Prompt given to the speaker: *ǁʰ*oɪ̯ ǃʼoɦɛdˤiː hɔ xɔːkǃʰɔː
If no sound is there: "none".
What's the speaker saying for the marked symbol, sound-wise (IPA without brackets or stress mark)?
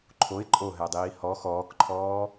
ǃʰ